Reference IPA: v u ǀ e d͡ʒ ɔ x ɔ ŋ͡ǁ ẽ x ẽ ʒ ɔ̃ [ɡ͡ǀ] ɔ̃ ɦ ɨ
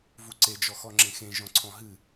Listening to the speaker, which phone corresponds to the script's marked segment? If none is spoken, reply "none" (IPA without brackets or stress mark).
ǀʰ